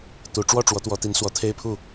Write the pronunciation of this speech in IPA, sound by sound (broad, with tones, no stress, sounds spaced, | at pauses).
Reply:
t̪ u˨˦ ʈ͡ʂ w ɔ˥˨ ʈ͡ʂ w ɔ˨˦ t̪ w ɔ˨˦ t̪ i˨˦ n s w ɔ˨˦ t̪ʰ e˦ ɪ̯ pʰ u˥˨